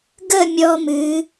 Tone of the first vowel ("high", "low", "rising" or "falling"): falling